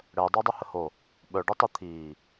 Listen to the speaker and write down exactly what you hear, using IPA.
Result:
ɽ əː dˤ əː dˤ u h ə h o | ɓ œ ɖ ø tˤ ø t̪ʰ iː

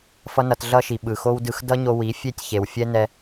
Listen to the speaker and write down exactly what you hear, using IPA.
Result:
f ʌ˦ n ʌ˧ t ɮ ʌ˦ ʃ i˨ ɓ ɯ˨ x o˦ w d ɯ˧ x d ʌ˦ ɲ o˧ w i˨˦ fʲ e˦˨ tʲ ç e˨ w fʲ ɛ˦ n ɛ˧

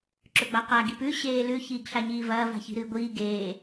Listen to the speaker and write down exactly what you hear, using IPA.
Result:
ǁ ɵ ɡ͡b a q a ɡ i p ʉ ɕ eː l ʉ ç iː ɡ ɬ a ɲ iː v ɐː v a̤ ç i̤ ɾ ɨː ɡʷ iː ɡ eː

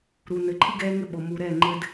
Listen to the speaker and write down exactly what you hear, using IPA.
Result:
ɾ u˨ n ɘ˨ ǃʰ ɨ˦ ɡ ɛː˦ ŋ ɘ˦ ɓ o˨ m u˨ ɾ ɛ˦˨ ŋ͡ǃ ɘ˦ d

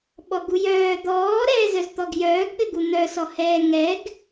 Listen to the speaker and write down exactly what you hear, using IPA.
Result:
ɓ ɔ ɡ u j œː d̪ ɔː ɾ ɛː z œ z t̪ ɔ ɡ j œː ɡ ɠ ɘ ɡ u n̪ œ s ɔ h ɛː ŋ ɛ ɡ

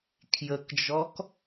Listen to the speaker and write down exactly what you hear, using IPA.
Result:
kʰ j ə k d͡ʒ ɔ k

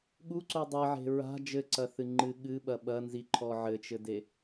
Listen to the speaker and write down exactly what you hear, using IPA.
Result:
ɠ u ǀ o dˤ ɘ ʕ e̤ ɹ a̤ d͡ʒ ɘ ǀ ɐ θ ɨ ŋ͡ǃ ɨ ɠ ɨ ɓ ɐ ɓ ɐ n z i ǃʰ ɔ ʕ ɘ t͡ʃ ɘ d e

